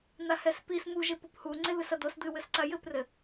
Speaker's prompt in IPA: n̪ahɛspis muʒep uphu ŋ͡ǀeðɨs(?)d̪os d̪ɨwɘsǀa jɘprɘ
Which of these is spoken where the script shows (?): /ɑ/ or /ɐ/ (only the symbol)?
ɐ